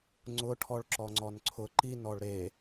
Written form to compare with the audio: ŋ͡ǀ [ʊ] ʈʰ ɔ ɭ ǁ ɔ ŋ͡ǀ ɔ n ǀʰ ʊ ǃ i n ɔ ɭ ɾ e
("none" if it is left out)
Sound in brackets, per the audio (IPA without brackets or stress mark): ʊ